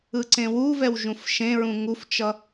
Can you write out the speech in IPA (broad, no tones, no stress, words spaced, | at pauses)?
ɯǀẽwuvɛw ʒũfʃẽɹũ ŋuft͡ʃʌ